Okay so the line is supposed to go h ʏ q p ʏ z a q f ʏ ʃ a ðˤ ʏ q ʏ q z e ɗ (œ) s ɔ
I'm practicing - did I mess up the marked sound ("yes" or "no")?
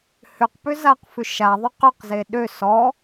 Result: yes